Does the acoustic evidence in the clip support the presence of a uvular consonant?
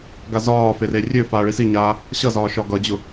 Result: no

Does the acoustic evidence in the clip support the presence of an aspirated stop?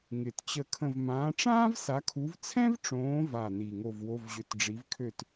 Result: yes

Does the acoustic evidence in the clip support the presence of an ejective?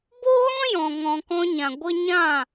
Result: no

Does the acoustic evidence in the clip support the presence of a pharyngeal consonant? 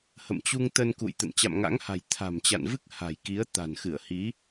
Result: no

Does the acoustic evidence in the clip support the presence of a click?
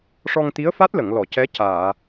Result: no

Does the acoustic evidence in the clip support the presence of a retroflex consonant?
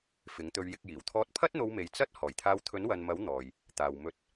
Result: no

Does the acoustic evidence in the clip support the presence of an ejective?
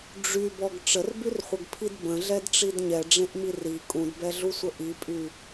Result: yes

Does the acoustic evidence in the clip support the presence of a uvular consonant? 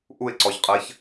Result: yes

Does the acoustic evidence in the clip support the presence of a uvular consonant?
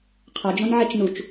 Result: yes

